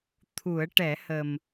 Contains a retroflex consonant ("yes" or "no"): yes